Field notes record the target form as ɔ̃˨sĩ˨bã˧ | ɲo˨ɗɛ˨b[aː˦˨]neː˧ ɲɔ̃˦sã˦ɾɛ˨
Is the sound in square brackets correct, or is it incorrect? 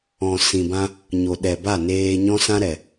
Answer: incorrect